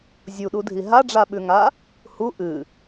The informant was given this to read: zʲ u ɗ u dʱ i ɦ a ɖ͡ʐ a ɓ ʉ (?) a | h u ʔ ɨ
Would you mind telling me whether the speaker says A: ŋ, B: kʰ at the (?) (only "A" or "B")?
A